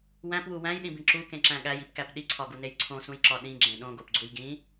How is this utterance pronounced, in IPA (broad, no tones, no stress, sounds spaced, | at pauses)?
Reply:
w æ̃ p w u w æ̃ j ɗ ĩ b ĩ ǁ u k ẽ ǁ æ̃ ɠ æ j i p k æ p ɗ i ǀʰ ɒ ɡ u n e j ǀʰ õ s ũ j ǁ ɒ ɗ ĩ ɡ͡ǁ ẽ ɗ õ ɡ o p ɡ͡ǀ u j ɡ ĩ